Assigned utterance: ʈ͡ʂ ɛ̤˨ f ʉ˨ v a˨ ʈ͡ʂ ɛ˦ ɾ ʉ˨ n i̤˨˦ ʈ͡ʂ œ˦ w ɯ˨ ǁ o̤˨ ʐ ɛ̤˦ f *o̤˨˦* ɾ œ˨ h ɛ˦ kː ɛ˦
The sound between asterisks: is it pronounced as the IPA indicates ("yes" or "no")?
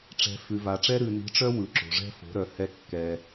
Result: yes